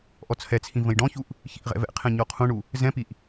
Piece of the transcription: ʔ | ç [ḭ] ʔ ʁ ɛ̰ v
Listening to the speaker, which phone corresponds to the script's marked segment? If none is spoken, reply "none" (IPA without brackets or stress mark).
ḭ